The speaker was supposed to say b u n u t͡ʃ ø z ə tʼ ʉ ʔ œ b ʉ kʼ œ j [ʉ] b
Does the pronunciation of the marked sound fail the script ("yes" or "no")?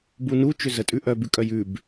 no